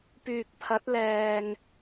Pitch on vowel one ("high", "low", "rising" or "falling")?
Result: low